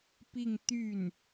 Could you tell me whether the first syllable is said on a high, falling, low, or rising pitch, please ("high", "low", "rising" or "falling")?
falling